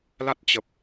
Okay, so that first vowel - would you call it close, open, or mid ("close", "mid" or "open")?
open